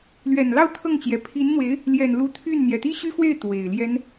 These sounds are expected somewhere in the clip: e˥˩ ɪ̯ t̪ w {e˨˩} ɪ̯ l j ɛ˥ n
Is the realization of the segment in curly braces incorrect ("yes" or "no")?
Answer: no